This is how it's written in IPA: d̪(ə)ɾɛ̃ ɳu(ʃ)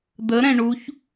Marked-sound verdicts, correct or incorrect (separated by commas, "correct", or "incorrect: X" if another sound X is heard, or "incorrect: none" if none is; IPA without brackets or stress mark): correct, incorrect: ç